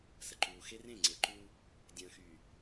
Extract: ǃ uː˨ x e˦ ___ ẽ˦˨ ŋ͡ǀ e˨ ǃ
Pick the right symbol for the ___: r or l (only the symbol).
r